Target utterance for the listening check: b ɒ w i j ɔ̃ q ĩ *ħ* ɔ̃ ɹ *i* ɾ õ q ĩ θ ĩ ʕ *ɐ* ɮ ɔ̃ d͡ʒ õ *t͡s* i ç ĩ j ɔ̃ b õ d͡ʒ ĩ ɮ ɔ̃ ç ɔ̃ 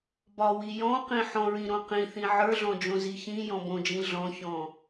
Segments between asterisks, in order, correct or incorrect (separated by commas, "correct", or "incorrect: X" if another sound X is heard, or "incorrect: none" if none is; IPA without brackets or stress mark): correct, incorrect: ĩ, incorrect: ə˞, incorrect: z